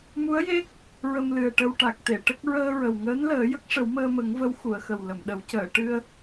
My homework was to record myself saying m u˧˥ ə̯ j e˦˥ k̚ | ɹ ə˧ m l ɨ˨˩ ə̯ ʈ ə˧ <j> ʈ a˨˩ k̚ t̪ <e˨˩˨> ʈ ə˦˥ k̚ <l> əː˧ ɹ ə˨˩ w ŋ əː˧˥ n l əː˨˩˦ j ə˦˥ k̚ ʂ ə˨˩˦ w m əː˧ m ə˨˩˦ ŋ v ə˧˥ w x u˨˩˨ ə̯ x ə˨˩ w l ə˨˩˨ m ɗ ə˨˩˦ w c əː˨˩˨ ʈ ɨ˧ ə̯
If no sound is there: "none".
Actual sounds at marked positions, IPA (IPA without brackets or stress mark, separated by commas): w, e˨˩˨, ɹ